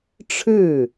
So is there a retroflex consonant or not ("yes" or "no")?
yes